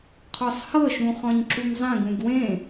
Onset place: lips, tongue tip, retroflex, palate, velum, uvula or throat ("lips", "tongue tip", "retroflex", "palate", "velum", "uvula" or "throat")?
uvula